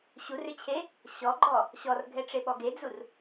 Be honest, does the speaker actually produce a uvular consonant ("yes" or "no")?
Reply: no